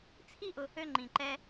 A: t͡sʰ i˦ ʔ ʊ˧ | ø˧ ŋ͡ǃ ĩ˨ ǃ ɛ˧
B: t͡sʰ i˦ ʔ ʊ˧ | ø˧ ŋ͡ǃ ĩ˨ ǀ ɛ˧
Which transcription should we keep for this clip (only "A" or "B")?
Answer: A